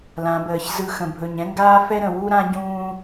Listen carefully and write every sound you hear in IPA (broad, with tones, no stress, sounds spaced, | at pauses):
l ã˨˦ b əː˨ ç z ɯ˦˨ x ə̃˨ bʱ ɵ˨ ɲ ɛ̃˦ ŋ ɡ aː˦ f ɛ˦ ɾ ə̃˨ w u˦ ɾ ã˦ ɟ ũː˦